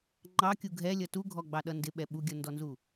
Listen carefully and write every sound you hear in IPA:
ŋ͡ǃ ɑ kʲ u ɡʱ ɛ lʲ ʌ t u ɡʱ ɔ ɡ͡b ɑ ɗ ʌ n d ɪ ɓ ɛ ɓ u ɡʲ ʌ n d ɔ n z u

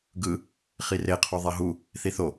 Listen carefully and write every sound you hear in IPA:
ɡ ɯ | χ i r e qʰ o ðˤ ɛ ɦ u | θ i θ o

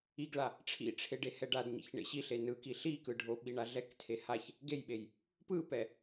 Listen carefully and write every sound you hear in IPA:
i ɡ ɭ a | ʈ͡ʂʰ ḭ ʈ͡ʂʰ e ɖ e h ɛ ɖ a d ɲ ḭ ç ɳ ḛ ɕ i ɬ e n ɯ k i ɬ i k ɯ ɖʱ o ɓ i ɳ a ɮ ɛ k tʰ e h a ç | ɡ e j ɓ e j | p ɯ p ɛ

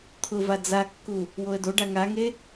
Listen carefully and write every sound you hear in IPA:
t̪ʰ ʊ v a d͡z a kː u | w o ə̯ d o ɖ a ŋ a ŋ e

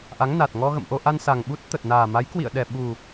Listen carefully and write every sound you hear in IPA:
ʔ a˨˦ ŋ n a˨˩ t̚ ŋ ɔ˧ ɣ ə̰˧˨ m ʔ o˧ ʔ a˧ n s a˨˩ ŋ ɓ u˦˥ t̚ t̪ ə˨˩ t̚ n aː˨˩ m a˨˦ j k w ḭ˧˨ ə̯ ɗ ɛ˨˩ ɓ u˨˩

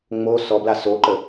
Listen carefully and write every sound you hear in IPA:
ŋ͡m o s ɔ b l a s o ǃ ə

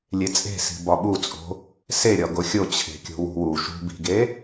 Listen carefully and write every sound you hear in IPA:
lʲ e t͡sʼ e̤ s i̤ b ɒ ɓ u t͡sʼ o̤ | s e ɾʲ ɒ ɡ o xʲ o t͡ɕʰ e̤ kʲ o̤ w ṳ w u ʃ ṳ b i̤ ɡ e

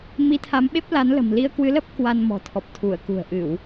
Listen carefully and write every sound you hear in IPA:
m i˨˦ t̪ʰ a˨˦ m ɓ e˦˥ p̚ l a˨˦ n l ə̤˨˩ m l i˧ ə̯ k w ɨ˨˦ l ə˦˥ p̚ k w a˧ n m ɔ̤˨˩ t̪ʰ ɔ˨˩ p̚ t̪ʰ u˧˩ ə̯ k ṳ˨˩ ə̯ ʔ ɨ˧˩˨ w

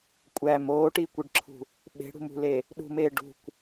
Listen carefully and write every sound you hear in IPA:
kʷʼ æ m oː ʈ iː kʷ i ɖ ǁʰ ṳ | ɓ e̤ ɽ ṳ m ṳ l e | ɗ ṳ m eː ɖ ṳ kʷ

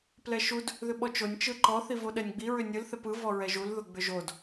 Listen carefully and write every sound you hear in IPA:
p l ɛ ʃ u d | ð ʏ ɓ ɔ t͡ʃ o nʲ t͡ʃ ɯ ǃ ɔ θ i v o ɗ ɛ nʲ ɡ͡b i ɹ ʏ nʲ ɯ l θ ɛ p ɯ v ɔ ɹ ɛ ʒ u l ð ʊ ɡ͡b ʏ ʒ o d

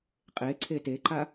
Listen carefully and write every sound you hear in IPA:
qʼ e ǀʰ e t e ǃ a

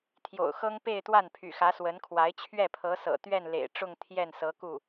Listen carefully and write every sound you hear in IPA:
t̪ʰ j o̰˨˩ ʊ̯ x ɤ˥ ŋ p e˥˧ ɪ̯ t̪ w a˥˩ n pʰ y̰˨˩ x ä˧˥ s w ə˧˥ n kʰ w a˧˥ ɪ̯ t͡ɕʰ ɥ ɛ˥˩ pʰ ɤ˧˥ s ɤ̰˨˩ t̪ ɥ ɛ˥˩ n l ḛ˨˩ ɪ̯ ʈ͡ʂ ʊ˥˧ ŋ t̪ʰ j ɛ˥˩ n s ɤ˧˥ k u˥˩

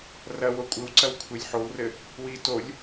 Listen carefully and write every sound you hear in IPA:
r ɐ w o kʷʼ ɘ w ǀ ɐ w kʷʰ e lʲ ħ o w r ɘ | w i t o lʲ

